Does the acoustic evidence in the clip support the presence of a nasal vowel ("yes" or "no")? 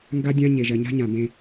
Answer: yes